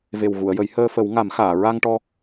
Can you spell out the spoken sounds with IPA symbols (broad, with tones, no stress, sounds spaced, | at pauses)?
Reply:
v e˨˩ w ɣ u˨˩˨ ə̯ j ə˨˩˦ j h əː˧ f ə˨˩˦ w ŋ a˨˩˦ m x aː˨˩˨ ɹ a˧ ŋ ʈ ɔ˧